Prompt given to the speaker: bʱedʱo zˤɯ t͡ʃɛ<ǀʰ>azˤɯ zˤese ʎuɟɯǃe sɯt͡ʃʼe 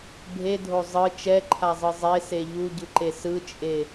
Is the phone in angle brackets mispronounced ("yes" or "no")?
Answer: yes